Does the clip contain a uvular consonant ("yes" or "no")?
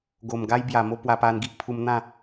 no